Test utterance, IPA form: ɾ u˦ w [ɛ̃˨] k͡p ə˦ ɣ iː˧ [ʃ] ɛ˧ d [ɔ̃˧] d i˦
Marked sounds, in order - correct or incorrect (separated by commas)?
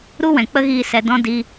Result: correct, incorrect, incorrect